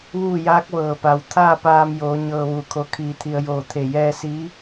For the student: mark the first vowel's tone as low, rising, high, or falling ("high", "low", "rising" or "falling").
falling